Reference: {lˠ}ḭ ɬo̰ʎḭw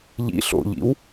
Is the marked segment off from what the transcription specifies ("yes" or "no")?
yes